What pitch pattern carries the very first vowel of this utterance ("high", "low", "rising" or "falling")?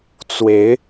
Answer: rising